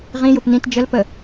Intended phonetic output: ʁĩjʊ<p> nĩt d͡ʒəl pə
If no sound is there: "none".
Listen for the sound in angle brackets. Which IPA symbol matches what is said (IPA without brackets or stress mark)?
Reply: p